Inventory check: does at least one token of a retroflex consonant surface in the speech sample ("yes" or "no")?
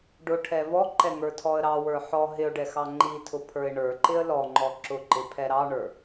yes